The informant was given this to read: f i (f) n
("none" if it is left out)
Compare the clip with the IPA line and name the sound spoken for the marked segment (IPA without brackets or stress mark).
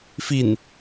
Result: none